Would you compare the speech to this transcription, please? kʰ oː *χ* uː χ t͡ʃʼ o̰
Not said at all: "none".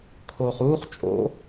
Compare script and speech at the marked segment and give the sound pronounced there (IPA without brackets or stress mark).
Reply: χ